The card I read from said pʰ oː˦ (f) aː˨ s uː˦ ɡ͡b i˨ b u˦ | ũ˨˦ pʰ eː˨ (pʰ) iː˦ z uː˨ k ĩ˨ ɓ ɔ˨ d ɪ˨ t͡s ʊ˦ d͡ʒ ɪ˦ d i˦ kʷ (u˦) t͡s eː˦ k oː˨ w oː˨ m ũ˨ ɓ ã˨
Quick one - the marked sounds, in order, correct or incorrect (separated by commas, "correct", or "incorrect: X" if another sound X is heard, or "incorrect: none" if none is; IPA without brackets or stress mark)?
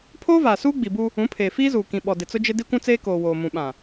incorrect: v, incorrect: f, incorrect: ũ˦